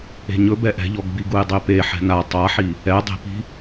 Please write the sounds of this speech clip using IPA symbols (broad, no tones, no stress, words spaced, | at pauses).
e̤ɲɵbɛ ʔɛ̤ʎɔɡbiɡuj dˤepe ħɛ̤na tˤaħi | ɛdˤe̤pi̤